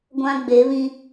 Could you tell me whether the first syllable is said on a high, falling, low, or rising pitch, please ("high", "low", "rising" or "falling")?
high